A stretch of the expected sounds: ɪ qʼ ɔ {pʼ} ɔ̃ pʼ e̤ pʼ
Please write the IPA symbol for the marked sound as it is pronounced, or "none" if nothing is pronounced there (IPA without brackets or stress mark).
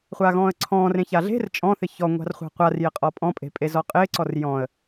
pʼ